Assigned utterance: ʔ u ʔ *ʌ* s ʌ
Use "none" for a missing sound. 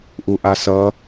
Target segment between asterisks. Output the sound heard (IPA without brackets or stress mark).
a